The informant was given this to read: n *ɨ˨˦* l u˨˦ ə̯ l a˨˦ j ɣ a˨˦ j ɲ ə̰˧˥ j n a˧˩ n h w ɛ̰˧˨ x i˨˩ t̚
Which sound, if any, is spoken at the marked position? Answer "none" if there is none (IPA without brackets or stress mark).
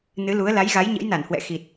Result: ɨ˨˦